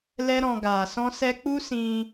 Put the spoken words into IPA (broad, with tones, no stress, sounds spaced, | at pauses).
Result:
l ɛ˦ ɾ ɔ̃˧ ɡ aː˨ s ɔ̃˦ s ɛ˦ k͡p u˦ s ĩ˧